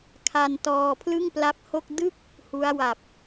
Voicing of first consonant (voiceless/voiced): voiceless